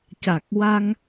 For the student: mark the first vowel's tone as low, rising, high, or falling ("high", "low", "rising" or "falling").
low